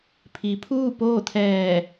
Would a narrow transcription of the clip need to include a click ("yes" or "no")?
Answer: no